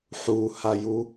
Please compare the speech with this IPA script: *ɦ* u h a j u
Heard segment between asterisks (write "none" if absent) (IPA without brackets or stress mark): ħ